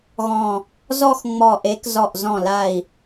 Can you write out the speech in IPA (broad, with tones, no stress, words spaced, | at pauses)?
ɣɔ̃˧˩ | zɔ˥˧xŋ͡mɔ˧˩ʔe˨˥k zɔ˧˩ʔzɔ̃˧˩la˧˩i̯